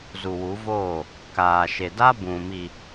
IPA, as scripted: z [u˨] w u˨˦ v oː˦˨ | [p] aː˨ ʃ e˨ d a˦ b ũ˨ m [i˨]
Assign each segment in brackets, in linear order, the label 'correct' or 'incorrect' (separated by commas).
correct, incorrect, correct